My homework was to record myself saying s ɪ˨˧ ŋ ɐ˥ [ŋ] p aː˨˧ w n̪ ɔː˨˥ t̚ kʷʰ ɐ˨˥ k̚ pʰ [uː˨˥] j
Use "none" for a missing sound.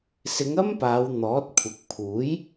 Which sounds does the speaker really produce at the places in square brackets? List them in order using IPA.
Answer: m, uː˨˥

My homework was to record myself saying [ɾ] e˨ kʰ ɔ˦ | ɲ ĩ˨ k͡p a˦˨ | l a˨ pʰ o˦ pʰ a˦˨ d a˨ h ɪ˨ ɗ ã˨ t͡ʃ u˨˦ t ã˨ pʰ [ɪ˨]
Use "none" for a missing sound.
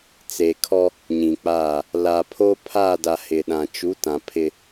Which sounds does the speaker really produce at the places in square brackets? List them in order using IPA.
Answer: t͡s, ɪ˦

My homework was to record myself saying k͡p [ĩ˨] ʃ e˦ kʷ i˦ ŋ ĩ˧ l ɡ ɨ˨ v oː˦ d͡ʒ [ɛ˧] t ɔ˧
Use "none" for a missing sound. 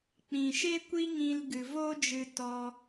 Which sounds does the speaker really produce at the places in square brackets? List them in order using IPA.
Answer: ĩ˨, ɨ˧

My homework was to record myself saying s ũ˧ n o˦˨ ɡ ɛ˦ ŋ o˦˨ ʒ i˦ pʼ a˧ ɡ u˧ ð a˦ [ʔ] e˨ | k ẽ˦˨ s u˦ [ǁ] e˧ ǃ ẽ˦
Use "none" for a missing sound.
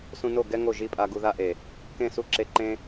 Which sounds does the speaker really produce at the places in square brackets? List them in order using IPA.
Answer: ʔ, ǁ

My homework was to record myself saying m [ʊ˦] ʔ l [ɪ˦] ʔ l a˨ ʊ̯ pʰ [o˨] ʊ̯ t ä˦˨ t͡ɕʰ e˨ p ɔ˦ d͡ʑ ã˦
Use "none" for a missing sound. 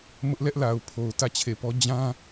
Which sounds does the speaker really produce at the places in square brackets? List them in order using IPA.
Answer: ʊ˦, ɛ˦, o˨

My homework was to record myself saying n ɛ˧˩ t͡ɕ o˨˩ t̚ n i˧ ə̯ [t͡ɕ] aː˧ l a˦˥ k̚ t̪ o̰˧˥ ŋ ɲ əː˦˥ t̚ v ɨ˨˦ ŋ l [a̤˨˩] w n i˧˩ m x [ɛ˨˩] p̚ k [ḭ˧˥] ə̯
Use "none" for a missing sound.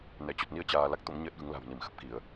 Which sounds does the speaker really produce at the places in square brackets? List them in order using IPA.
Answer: t͡ɕ, a̤˨˩, ə˨˩, i˧˩˨

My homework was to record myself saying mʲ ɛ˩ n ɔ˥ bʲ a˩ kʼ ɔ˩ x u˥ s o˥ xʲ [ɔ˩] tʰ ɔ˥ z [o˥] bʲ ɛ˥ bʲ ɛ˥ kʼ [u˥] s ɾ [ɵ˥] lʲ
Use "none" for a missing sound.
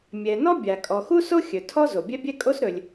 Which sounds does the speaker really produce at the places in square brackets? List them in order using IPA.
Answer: ɵ˩, o˩, o˥, ɵ˩

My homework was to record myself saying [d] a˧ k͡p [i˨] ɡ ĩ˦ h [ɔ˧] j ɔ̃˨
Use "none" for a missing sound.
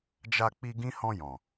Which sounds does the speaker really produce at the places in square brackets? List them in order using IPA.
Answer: d͡ʒ, i˧, ɔ̃˧

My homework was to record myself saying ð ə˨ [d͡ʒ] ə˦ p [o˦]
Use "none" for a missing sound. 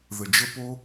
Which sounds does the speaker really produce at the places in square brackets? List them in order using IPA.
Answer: d͡ʒ, o˦

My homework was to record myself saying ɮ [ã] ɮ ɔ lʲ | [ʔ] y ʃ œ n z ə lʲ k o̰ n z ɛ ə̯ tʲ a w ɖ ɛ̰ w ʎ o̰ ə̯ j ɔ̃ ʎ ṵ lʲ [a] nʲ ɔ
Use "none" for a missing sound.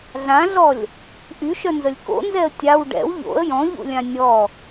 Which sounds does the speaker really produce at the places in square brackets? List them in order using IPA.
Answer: ã, ʔ, ã

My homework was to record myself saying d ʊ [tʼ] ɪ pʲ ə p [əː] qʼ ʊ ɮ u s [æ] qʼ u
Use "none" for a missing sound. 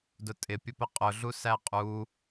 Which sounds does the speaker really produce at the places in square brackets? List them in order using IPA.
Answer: tʼ, ə, æ

